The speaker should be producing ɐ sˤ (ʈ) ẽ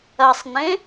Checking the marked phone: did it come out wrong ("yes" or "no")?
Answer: yes